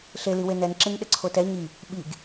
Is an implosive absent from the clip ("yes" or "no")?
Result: no